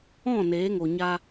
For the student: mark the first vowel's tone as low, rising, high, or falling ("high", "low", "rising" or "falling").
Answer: falling